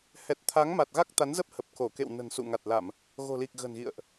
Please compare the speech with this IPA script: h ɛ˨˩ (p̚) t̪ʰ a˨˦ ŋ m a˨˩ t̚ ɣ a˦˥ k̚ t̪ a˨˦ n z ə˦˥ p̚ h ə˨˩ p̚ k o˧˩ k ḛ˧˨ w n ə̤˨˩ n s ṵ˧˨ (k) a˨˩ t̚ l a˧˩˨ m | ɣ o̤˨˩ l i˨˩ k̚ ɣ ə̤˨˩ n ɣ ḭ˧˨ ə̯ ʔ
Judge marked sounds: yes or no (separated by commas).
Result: no, no